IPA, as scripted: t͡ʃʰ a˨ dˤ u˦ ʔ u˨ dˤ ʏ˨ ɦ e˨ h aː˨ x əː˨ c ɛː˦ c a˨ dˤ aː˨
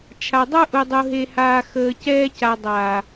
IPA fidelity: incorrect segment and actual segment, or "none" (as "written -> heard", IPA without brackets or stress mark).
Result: ʏ˨ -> u˨